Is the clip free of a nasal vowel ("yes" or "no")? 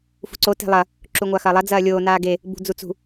yes